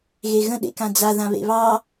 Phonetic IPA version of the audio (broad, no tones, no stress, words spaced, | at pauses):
ɣeɣə̃ ɗḛkãd͡za ðãβḛβɑ